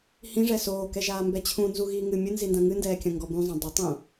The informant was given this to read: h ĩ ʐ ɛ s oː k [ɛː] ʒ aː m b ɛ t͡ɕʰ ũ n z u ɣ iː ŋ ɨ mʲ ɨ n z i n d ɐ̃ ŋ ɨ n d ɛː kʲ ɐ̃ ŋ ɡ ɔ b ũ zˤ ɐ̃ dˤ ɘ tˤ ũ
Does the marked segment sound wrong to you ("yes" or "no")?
yes